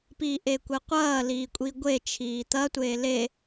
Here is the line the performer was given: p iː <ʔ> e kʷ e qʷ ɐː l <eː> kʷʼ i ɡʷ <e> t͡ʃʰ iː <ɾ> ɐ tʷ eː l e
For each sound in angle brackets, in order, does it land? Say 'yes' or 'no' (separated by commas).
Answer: yes, no, yes, no